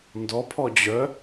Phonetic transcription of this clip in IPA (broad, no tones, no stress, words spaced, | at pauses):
ndɔpʰɔ d͡ʑœ